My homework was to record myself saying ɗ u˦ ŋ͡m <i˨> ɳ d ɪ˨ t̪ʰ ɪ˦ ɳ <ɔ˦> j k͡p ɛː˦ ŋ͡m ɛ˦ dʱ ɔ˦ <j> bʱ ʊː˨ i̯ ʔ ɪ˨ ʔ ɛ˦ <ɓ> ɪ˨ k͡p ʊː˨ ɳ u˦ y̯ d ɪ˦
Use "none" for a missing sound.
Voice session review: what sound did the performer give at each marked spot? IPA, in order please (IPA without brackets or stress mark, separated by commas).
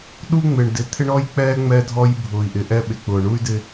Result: ɪ˨, ɔ˦, j, ɓ